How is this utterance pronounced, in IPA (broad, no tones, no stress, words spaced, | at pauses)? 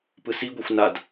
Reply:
pɯsiɡʷexʷ nad